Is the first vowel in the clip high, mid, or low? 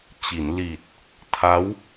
high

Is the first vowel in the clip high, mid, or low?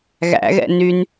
low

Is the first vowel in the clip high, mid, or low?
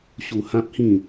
high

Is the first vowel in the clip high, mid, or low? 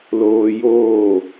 mid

